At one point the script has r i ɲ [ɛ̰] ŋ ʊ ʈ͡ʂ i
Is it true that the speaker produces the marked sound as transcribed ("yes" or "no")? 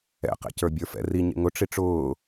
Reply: no